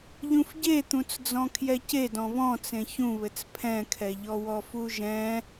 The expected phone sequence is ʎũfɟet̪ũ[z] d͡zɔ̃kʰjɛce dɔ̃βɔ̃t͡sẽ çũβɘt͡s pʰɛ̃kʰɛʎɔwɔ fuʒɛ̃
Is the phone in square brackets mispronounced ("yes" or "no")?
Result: yes